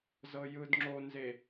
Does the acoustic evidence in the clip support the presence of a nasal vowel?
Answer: no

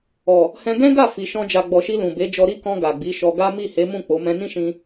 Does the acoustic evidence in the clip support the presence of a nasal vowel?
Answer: yes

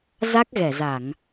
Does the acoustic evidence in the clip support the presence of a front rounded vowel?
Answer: no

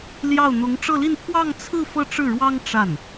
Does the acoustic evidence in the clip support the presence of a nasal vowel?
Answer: no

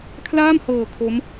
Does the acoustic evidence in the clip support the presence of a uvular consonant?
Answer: no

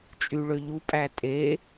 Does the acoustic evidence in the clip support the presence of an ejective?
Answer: yes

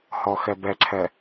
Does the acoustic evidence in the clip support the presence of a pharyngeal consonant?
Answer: no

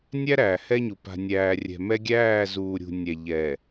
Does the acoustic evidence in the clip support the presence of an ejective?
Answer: no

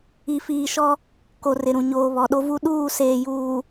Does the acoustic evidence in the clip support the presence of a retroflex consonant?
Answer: no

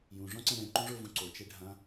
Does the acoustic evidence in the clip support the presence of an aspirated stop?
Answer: no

